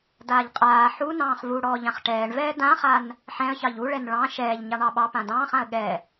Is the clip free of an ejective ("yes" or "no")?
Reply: no